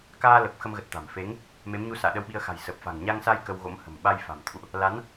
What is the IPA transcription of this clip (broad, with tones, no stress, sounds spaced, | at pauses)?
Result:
k aː˧ l ə˨˩ p̚ x ə˧ m ɣ ə˨˩ t̚ t̪ a̤˨˩ m f e˨˦ ŋ | m e˨˦ m ɲ u˧ s a̰ː˧˨ ɗ ə˧ w ɓ i˧ ə̯ x a̤˨˩ j s ə˨˩ p̚ f a̤˨˩ ŋ ɲ a˧ ŋ s a˧ j k ə˧ w ɣ o̰˧˥ m h ə̤˨˩ m ɓ a˧ j f a̤˨˩ m t̪ʰ ṵ˧˨ ʔ | l a˨˦ n